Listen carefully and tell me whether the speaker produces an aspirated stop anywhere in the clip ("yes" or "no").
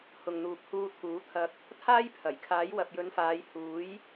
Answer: yes